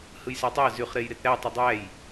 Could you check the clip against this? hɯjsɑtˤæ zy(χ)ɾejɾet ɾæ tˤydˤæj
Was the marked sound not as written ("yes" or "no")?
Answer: no